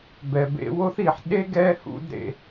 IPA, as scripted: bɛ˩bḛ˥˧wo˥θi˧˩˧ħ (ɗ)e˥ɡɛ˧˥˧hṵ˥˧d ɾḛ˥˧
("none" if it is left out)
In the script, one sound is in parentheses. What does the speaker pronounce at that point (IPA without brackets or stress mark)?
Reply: ɗ